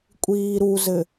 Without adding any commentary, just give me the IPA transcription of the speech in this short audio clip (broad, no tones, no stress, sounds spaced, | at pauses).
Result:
kʷʼ iː ɾ u z ɘ